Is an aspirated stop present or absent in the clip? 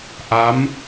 absent